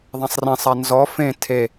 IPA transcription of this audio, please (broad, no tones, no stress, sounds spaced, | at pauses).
ðˤ ã sˤ r ẽ sˤ a n z ɔ f ẽ tʰ e